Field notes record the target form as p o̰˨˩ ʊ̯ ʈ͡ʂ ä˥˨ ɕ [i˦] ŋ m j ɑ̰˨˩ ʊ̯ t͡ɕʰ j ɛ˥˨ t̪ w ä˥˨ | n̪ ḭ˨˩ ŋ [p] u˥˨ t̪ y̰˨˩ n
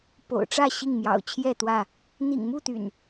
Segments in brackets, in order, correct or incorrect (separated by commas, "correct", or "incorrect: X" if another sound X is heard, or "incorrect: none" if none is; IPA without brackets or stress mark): incorrect: i˥˨, incorrect: m